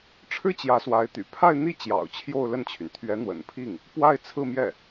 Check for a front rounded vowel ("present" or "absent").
present